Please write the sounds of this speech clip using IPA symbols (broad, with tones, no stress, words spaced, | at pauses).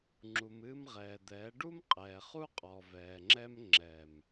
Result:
ŋ͡ǁu˨mɨː˧mʁɛː˨d̪ɛː˨˦ ɖu˦mqʼɛː˨χu˦ qʼɔ˨ vɛː˨ŋ͡ǁɛ˦m ŋ͡ǁɛ˨m